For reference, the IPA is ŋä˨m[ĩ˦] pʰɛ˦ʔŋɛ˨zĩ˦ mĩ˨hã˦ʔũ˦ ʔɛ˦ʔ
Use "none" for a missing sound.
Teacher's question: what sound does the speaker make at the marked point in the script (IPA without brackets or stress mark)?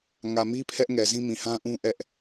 i˦